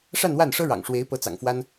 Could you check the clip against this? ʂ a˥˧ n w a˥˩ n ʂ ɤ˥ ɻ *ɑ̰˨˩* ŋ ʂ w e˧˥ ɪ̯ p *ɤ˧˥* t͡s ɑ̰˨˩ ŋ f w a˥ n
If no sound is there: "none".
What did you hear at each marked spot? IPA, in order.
ɑ̰˨˩, ɤ˧˥

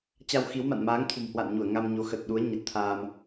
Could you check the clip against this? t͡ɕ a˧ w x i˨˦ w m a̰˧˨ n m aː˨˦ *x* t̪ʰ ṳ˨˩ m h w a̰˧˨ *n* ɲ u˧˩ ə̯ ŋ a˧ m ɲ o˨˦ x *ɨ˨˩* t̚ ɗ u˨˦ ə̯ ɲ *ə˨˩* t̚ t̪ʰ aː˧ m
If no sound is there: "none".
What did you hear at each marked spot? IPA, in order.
ŋ, n, ə˨˩, ə˨˩

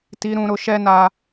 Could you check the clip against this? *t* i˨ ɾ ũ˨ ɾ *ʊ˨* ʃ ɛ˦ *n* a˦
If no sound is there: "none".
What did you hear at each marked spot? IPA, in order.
t, ʊ˨, n

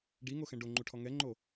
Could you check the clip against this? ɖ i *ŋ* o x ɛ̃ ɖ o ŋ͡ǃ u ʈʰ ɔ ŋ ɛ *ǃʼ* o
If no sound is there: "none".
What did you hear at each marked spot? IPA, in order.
ŋ, ŋ͡ǃ

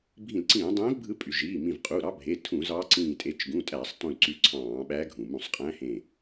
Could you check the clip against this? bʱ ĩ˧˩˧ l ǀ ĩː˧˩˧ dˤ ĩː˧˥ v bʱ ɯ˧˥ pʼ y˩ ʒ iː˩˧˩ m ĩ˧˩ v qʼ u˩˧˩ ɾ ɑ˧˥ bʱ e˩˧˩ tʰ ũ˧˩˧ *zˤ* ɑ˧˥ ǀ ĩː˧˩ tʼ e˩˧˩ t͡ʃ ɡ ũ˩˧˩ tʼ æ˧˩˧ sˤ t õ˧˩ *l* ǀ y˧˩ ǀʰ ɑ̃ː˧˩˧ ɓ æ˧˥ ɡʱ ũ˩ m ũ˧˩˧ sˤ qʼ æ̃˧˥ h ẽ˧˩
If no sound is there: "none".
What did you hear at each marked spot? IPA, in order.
z, l

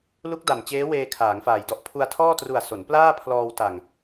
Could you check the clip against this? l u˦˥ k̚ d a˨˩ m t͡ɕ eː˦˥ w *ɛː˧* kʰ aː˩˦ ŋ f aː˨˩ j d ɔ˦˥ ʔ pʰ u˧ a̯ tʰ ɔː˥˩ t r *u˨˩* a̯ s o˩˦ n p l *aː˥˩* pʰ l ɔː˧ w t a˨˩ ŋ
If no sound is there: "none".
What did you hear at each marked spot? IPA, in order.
eː˧, u˨˩, aː˥˩

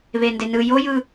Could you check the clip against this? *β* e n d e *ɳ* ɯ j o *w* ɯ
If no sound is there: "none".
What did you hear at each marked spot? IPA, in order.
β, n, j

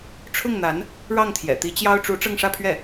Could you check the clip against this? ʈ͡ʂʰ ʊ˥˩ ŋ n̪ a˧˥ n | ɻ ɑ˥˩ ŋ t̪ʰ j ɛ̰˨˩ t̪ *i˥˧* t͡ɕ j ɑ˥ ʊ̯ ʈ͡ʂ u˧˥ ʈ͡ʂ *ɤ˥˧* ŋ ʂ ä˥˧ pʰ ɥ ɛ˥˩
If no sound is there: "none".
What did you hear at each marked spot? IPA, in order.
i˧˥, ɤ˥˧

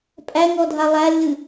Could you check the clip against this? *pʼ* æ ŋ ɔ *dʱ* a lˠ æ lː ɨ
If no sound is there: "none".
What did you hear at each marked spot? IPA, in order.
pʼ, dʱ

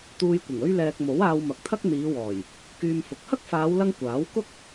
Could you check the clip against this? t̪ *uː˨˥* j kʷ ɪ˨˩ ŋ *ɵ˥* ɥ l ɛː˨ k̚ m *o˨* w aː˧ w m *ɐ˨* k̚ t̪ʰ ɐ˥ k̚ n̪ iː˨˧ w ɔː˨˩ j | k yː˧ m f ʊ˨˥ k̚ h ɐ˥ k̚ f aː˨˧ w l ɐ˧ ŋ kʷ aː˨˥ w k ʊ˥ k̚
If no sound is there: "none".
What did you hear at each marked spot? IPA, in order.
uː˧, ɵ˥, o˨˥, ɐ˨

